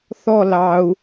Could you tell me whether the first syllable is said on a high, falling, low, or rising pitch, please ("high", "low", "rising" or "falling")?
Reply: falling